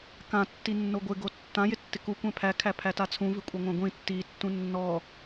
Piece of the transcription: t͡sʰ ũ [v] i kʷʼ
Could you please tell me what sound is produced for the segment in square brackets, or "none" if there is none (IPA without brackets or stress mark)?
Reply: v